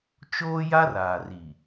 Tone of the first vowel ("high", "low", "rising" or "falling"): high